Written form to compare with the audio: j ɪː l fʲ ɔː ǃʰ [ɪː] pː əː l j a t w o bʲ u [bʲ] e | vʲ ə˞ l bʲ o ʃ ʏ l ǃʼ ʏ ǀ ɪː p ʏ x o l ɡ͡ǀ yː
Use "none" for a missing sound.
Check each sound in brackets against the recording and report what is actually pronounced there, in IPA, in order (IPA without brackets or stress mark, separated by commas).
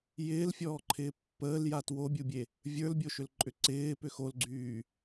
ɪː, bʲ